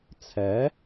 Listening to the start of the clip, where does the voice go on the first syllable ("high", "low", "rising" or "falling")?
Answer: rising